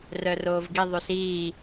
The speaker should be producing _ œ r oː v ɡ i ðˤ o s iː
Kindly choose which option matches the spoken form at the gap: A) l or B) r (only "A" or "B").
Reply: B